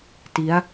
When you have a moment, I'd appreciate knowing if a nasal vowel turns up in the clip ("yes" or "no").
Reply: no